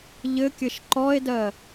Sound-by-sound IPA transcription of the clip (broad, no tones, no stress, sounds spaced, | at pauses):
ʎ ɘ kʲ ɘ ʃ ǃ ɔ e̯ d ɜ